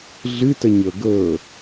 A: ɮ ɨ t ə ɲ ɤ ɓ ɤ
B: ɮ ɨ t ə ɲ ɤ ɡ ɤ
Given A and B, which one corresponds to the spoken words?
B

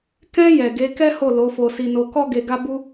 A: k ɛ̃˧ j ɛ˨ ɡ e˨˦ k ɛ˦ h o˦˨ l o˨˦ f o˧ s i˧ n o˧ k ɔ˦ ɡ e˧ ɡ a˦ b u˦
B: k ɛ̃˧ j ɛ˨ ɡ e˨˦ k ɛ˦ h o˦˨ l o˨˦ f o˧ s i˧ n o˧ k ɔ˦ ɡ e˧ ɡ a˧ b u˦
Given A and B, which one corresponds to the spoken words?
A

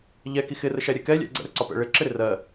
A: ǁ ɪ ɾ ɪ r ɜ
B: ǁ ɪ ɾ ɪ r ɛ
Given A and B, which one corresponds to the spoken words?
A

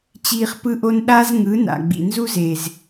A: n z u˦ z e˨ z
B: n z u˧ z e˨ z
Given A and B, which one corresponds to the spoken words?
A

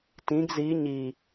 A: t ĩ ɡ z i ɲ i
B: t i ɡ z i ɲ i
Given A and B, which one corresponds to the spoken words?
A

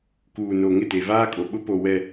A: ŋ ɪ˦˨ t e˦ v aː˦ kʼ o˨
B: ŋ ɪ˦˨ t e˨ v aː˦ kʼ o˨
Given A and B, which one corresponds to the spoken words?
B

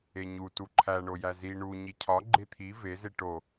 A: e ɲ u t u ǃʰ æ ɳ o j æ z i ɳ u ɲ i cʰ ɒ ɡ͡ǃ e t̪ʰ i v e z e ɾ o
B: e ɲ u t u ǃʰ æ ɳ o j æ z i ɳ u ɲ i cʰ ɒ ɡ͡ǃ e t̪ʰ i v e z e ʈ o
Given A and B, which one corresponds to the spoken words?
B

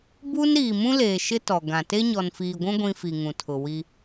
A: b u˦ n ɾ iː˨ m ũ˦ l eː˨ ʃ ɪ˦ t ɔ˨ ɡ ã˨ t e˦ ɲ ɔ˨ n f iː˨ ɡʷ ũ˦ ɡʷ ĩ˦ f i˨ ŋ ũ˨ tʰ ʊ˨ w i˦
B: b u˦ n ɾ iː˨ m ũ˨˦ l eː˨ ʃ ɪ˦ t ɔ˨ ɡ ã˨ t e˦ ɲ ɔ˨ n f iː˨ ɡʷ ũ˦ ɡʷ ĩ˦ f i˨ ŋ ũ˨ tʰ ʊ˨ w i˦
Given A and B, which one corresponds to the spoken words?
A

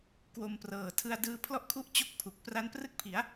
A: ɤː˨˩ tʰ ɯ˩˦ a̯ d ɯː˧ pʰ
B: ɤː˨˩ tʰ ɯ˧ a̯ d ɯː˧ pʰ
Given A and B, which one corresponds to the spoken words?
B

